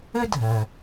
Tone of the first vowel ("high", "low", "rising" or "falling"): high